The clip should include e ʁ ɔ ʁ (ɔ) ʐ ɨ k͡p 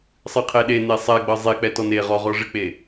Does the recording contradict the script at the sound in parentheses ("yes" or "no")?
no